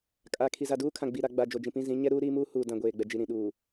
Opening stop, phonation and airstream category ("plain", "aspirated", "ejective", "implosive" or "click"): ejective